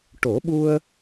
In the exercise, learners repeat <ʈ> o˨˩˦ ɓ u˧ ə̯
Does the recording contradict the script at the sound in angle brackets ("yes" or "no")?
no